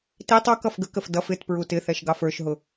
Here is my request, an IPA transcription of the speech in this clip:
t i tˤ ɔ k ʌ f ɡ ə k ə f d ʌ f ɪ t p ɹ u t ɪ θ ɛ ʃ ɡ ɑ f ə˞ ʃ ɦ ʊ

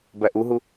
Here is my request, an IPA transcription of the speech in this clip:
b æ ʔ u ɦ u

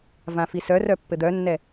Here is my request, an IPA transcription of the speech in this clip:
v ã f i s œ r œ pː ɘ d̪ œ nː ɛ

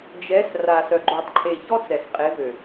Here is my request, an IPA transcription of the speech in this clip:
d͡ʒ ɛ˨˦ s r a˨ s œ˨ ɡ͡ǃ o˨ tˤ ǃʰ e˨ ç ɔ˦ t͡s ɛ˨ s qʼ e˨˦ v ø˨

